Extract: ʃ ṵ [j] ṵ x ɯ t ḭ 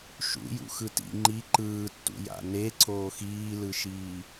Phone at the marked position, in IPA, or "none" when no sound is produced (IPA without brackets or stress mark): j